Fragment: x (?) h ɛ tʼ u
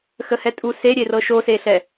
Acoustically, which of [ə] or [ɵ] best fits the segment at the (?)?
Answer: ə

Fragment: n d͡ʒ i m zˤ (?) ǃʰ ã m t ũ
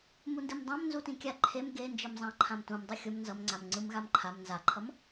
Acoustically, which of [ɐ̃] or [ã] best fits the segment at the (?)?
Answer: ã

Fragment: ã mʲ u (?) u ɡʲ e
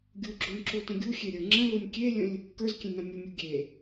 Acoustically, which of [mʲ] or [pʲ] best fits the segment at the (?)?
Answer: mʲ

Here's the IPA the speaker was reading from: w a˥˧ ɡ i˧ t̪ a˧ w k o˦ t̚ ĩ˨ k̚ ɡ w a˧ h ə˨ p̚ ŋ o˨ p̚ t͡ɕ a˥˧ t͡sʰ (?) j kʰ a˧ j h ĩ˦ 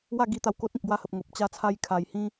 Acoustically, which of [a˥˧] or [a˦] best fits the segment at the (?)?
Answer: a˦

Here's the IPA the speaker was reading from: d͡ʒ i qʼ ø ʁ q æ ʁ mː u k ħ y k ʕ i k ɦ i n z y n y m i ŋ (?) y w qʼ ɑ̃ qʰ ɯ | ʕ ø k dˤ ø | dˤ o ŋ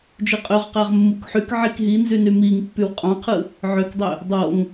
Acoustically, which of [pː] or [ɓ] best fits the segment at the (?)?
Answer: pː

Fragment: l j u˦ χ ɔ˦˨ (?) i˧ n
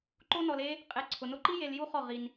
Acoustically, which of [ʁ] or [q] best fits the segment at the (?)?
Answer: ʁ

